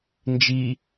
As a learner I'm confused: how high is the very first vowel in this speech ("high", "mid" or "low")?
high